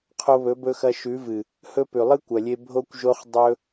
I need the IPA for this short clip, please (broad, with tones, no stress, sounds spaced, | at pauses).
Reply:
qʰ o˧ β ɵ˨˦ b ɵ˧ x ɐ˧ ʃ ʉ˨˦ v ɨ˨ | h ɵ˦ p ʉ˨ lˠ ɨ˦ kʷ ɐ˨ lʲ e˧ bʱ o˧ kʷ ʒ o˧ χ dˤ ɵ˦